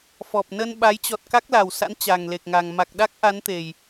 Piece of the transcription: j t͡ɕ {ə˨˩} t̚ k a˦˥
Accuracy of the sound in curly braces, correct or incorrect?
incorrect